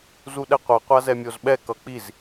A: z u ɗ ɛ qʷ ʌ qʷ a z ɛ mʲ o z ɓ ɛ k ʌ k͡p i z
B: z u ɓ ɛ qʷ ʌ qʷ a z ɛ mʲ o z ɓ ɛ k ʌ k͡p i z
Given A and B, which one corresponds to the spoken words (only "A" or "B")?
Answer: A